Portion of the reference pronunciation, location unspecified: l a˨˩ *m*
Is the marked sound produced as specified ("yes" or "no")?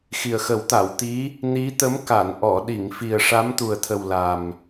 yes